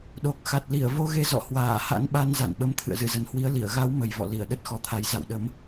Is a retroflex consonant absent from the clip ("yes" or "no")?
yes